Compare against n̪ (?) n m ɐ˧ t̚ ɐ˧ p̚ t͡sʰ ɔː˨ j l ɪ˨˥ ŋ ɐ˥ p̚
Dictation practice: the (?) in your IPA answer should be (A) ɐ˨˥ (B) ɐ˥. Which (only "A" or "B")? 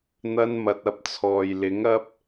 B